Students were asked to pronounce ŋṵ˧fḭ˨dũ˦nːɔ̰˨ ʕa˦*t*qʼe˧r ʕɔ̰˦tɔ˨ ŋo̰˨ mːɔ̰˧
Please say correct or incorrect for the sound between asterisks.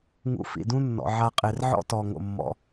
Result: incorrect